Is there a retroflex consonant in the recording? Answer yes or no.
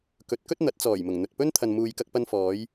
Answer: no